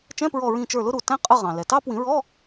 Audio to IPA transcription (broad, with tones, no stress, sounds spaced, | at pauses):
t͡ʃ ɛ̃˧˥˧ p ɹ ɔ˧˩ ɹ ĩ˧˩ t͡ʃ ə˞˧˩ l ʊ˥ ɾ u˧˩ t æ̃˥ qʼ ə˧˥˧ ʁ ɑ̃˩ l ɛ˩ t ɑ˥ p w ĩ˨˩˦ ɹ ɔ˧˥˧